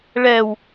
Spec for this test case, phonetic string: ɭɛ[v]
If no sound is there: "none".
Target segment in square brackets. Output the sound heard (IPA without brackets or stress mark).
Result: w